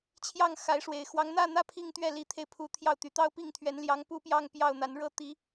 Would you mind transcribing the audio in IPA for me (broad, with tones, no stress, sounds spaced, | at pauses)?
t͡ɕʰ j ɑ˥˩ ŋ x a˧˥ ɪ̯ ʂ w e˨˩ ɪ̯ x w ɑ˧˥ ŋ n̪ ä˥˧ n̪ ä˥˧ pʰ i˥˧ ŋ t̪ ɥ ɛ˥˩ l i˧˥ t̪ʰ e˧ ɪ̯ pʰ u˧˥ t̪ʰ j ɑ˥˩ ʊ̯ t̪ y˨˩ t̪ ɑ˥˧ ʊ̯ p i˥˩ ŋ t̪ʰ ɥ ɛ˧˥ n l j ɑ˧˥ ŋ p u˥˧ p j ɑ˥˧ ŋ p j ɑ˥˩ ʊ̯ n̪ a˧˥ n ɻ ɤ˥ t̪ i˧˥